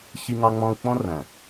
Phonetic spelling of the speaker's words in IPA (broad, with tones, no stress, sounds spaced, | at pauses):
ç i˧ ŋ ɑ˧ ŋ͡m ɔ̃˧ u̯ k͡p ɔ̃˦ r æ̃˨